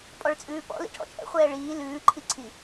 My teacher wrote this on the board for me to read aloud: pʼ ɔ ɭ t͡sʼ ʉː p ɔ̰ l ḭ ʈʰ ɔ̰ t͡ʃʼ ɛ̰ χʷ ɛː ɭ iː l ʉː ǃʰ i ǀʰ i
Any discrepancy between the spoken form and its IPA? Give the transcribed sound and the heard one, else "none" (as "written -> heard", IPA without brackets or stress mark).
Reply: none